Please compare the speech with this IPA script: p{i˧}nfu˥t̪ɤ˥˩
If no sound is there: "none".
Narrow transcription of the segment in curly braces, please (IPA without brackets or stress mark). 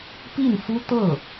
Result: i˥˩